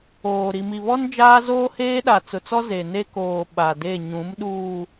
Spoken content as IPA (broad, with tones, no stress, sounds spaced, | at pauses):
oː˨ ɾ i˨ m i˨ β ɔ˦ n d͡ʒ aː˦ z oː˦ h eː˦ ɗ a˨ t͡s ʊ˨ t͡s ɔ˦ z e˨ n e˦ k oː˨ ɓ a˨ d e˦˨ ɲ ũ˨˦ m ɗ uː˨